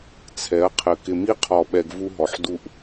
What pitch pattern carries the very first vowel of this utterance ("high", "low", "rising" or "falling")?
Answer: rising